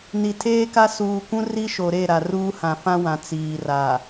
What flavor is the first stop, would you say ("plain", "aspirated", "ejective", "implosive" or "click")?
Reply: aspirated